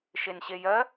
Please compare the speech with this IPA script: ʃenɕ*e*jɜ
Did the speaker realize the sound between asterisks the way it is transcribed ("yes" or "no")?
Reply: yes